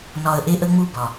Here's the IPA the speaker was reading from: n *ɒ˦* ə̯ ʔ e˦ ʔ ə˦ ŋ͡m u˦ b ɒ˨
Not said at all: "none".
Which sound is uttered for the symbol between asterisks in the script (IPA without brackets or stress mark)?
ɒ˨